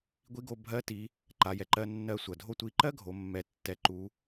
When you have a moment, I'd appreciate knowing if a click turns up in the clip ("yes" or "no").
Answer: yes